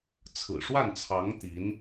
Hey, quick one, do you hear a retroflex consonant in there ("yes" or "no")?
yes